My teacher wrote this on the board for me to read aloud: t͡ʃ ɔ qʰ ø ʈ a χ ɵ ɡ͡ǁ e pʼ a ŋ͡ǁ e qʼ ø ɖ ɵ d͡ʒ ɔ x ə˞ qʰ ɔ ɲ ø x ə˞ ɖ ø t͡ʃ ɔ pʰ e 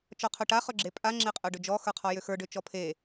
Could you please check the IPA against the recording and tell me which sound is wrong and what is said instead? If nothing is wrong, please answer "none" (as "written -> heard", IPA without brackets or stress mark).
ɲ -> j